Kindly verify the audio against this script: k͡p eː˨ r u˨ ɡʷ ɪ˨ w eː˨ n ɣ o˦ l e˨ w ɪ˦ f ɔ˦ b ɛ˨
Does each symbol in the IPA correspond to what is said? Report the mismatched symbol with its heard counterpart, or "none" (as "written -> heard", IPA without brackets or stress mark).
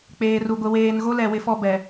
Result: e˨ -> ɛ˨